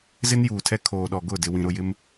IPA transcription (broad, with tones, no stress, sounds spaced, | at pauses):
z ɪ˦ n j uː˨ tʰ ɛ˦ kʰ oː˨ ɗ ɔ˨ ɡ ʊ˦˨ d ɪ˦ w ĩ˦ ɾ ʊ˦ j ɪ˦ m